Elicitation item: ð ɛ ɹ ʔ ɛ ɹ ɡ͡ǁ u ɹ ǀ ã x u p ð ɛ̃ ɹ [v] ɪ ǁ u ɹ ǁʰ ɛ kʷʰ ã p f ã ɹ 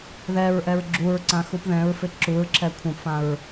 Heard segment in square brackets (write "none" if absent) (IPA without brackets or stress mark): f